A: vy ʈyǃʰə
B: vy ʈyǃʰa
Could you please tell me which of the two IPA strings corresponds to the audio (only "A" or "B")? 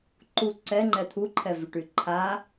B